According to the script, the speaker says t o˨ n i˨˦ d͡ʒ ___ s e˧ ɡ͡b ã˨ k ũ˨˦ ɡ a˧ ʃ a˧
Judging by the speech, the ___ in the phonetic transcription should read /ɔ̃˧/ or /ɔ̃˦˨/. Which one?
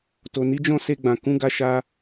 ɔ̃˦˨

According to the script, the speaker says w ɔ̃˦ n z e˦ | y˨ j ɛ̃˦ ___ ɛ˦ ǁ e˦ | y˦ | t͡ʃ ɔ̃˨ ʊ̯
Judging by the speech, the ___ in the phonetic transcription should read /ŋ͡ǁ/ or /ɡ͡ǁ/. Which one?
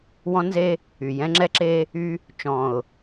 ŋ͡ǁ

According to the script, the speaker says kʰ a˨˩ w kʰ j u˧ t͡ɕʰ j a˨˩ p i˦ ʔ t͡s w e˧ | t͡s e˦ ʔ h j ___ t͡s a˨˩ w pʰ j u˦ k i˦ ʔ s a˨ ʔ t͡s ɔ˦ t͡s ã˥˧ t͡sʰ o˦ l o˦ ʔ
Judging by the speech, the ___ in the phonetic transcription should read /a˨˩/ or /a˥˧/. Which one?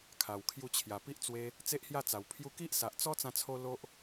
a˥˧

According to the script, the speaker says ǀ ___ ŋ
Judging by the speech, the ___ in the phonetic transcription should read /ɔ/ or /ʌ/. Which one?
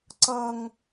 ʌ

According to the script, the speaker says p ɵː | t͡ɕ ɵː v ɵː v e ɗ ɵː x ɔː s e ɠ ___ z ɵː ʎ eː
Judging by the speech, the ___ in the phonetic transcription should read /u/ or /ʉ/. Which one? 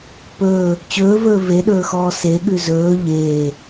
ʉ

